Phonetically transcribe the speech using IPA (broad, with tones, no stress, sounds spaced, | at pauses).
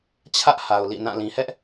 t͡ɕʰ ä˦ ʔ h a˨ ʊ̯ l ḭ˦˨ n ã˦˨ l ĩ˨ h ɛ˦ ʔ